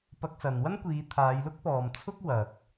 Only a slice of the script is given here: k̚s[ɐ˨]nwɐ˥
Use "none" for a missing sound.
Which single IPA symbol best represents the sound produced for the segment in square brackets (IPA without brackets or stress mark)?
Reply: ɐ˨